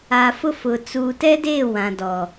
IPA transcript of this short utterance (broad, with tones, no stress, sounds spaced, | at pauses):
a˨ f ʊ˦ f ʊ˨ t͡s u˨ t ɛ˦ d eː˦˨ w ã˨ d ɔ˨